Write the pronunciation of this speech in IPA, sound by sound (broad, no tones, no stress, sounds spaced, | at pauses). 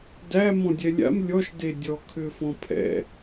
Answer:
d æ m ɔ̃ dʲ ɛ lʲ a̰ m lʲ ɔ ʃ d e dʲ ɔ kʰ ʏ f ɔ̃ pʰ ɛ̰